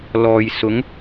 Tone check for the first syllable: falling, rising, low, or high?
low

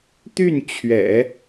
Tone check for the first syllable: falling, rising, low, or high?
falling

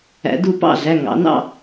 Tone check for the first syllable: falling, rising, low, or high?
rising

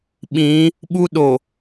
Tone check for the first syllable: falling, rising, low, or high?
rising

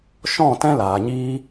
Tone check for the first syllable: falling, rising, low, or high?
falling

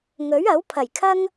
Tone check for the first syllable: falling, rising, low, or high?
rising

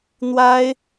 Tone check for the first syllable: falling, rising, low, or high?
high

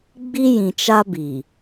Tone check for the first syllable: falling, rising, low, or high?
high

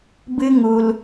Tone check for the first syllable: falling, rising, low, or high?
high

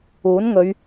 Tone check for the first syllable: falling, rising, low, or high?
rising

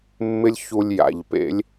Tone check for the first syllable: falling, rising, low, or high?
high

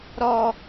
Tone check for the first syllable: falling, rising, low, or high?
falling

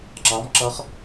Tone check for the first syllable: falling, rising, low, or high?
rising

